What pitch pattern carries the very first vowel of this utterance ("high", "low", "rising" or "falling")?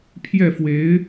falling